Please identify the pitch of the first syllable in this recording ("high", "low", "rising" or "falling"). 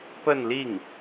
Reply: falling